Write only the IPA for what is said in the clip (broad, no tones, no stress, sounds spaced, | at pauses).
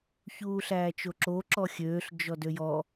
ç uː ɬ æː t͡ʃ o ǁ o ǁ ɔ xʲ øː ɬ d͡ʒ ɔ d ø j ɔ